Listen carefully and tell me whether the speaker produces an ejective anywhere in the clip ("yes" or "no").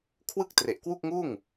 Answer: no